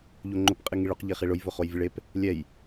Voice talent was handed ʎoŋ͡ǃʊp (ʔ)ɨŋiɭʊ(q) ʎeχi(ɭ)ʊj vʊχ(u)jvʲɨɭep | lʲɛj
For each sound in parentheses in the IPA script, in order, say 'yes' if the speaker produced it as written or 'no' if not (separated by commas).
no, yes, yes, no